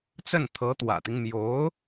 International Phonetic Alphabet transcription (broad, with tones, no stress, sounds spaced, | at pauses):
t͡s ə˥˩ n t̪ʰ ɤ˧˥ t̪ w ä̰˨˩ t̪ i˦ ŋ m j o˧˥ ʊ̯